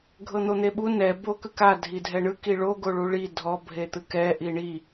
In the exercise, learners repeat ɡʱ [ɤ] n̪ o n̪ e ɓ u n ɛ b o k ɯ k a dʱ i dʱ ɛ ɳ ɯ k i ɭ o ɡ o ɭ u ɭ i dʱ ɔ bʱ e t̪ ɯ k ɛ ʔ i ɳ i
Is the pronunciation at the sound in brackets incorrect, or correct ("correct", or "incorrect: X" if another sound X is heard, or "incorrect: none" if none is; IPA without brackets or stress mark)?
correct